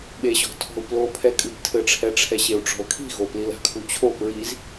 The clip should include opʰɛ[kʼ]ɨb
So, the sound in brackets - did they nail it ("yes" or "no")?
yes